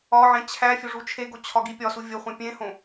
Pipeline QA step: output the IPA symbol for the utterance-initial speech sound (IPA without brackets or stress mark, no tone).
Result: ɒ